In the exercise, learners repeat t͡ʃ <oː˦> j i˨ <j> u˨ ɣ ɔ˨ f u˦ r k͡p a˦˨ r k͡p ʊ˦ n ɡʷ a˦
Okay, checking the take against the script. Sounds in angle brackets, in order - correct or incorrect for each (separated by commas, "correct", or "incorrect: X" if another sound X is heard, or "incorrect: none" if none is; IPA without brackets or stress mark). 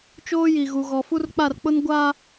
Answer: correct, incorrect: ɣ